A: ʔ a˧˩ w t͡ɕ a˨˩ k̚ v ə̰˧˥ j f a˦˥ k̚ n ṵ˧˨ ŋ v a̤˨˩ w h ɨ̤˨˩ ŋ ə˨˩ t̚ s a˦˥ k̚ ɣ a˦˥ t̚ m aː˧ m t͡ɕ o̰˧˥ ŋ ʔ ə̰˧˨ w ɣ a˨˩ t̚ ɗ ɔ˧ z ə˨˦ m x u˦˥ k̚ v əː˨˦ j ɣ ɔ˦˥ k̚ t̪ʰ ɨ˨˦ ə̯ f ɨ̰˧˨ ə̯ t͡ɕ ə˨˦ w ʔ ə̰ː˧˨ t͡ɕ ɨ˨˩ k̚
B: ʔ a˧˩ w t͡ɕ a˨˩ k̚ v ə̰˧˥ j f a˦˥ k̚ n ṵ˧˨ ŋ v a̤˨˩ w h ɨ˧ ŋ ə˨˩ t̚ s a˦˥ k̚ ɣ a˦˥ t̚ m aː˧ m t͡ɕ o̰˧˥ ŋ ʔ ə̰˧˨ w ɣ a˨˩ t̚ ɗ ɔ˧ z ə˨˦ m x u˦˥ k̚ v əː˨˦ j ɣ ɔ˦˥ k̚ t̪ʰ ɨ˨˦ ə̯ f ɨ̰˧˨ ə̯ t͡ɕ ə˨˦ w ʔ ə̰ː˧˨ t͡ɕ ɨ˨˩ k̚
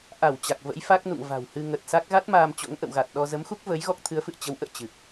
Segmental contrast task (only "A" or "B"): B